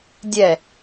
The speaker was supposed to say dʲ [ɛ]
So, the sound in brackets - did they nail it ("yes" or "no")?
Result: yes